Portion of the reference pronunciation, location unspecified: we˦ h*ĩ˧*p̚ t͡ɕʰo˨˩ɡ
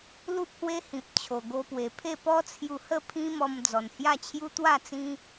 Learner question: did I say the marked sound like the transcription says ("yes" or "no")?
no